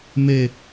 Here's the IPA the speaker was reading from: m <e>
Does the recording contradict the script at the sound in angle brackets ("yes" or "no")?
no